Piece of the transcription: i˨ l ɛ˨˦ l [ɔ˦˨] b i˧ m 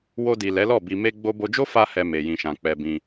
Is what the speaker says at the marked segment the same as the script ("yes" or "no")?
yes